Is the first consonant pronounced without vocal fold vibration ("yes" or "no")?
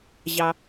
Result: no